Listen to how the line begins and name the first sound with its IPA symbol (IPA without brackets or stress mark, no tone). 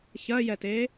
ç